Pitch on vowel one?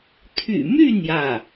low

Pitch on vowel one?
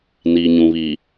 low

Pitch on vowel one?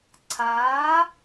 rising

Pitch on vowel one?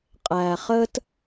low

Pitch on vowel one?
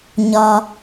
low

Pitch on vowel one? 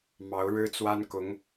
rising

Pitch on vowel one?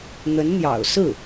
rising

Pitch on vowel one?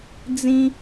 high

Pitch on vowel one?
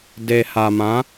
low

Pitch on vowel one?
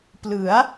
rising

